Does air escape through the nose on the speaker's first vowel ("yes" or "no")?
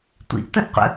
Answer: no